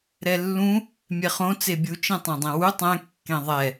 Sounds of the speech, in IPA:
ɾɛlːũ | mʲɛχõ t͡sebʲu t͡ʃẽtˤɛ̃dˤẽwu tˤɛ̃ kːẽðˤɛ

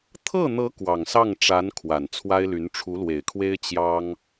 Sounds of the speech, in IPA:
t̪ʰɤ˥˩n̪ɤ˧˥ kwɑ˨˩ŋ sɑ˥˩ŋʈ͡ʂa˧˥n kʰwa˨˩nt͡sʰwa˥ɪ̯ly˧˥n ʈ͡ʂʰu˧˥lwe˨˩ɪ̯kʰwe˥ɪ̯ t͡ɕjɑ˥ŋ

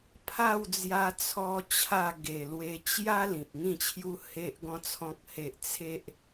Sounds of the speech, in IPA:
pʰa˥˧wd͡zja˧ t͡sʰɔ˦t͡ɕʰa˥˧ ɡe˨˩lwe˧ t͡ɕja˦ lĩ˨p̚ŋĩ˥˧t͡ɕʰju˦ he˦ʔɡɔ̃˦ t͡sʰɔ̃˦k̚he˦ʔ t͡sʰe˦ʔ

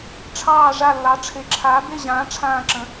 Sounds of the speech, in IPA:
ʈ͡ʂʰɑː˦˨ ʐa˦˨lːɑ˨˥ʈ͡ʂʰe˨˥ǁʰaː˨˥ be˦˨ʑãː˨˥ ʈ͡ʂʰãː˦˨ǁə̃˨˥

